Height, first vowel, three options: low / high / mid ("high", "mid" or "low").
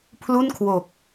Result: high